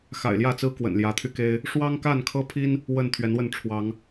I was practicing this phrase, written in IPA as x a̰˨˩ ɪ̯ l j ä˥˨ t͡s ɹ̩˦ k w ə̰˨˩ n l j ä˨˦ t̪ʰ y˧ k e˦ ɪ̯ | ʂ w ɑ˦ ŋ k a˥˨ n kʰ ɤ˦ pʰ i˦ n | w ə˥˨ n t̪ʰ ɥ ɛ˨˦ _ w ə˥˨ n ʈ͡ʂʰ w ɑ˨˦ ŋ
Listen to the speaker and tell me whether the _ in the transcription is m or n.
n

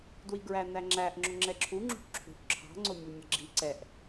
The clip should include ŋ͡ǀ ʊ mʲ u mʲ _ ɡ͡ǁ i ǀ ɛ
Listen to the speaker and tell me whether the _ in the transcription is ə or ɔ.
ə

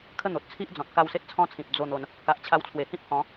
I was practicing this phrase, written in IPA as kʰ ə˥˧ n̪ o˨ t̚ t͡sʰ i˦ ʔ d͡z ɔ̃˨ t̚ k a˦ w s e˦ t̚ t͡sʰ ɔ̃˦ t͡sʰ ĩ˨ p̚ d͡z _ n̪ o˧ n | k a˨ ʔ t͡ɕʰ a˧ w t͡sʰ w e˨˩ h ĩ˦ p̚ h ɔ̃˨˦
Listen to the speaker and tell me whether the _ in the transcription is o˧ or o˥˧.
o˥˧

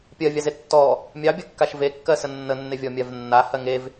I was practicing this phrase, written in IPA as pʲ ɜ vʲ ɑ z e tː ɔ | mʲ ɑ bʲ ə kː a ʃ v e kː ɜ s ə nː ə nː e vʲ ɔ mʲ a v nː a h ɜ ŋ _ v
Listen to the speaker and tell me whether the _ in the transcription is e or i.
e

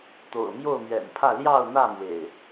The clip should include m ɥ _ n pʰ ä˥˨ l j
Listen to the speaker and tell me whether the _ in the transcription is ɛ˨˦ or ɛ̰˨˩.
ɛ̰˨˩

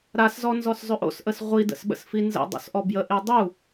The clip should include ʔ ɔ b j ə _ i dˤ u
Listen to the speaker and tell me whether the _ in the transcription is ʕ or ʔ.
ʔ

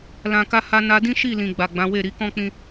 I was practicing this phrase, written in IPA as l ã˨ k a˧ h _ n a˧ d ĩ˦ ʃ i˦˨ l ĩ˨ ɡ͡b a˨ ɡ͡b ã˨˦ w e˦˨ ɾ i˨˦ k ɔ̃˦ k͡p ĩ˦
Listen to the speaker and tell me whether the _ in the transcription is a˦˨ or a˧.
a˧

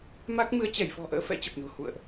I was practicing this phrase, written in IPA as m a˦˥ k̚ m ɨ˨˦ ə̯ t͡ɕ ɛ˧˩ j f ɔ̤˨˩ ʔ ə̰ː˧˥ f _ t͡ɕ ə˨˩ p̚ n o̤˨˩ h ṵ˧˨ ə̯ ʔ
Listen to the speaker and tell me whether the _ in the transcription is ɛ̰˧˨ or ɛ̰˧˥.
ɛ̰˧˥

